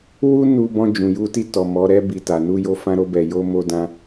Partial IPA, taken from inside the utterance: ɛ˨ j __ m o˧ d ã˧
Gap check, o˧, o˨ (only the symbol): o˧